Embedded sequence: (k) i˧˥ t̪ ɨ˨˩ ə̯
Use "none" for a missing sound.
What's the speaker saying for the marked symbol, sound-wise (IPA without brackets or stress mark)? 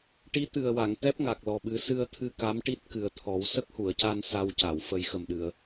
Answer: ʈ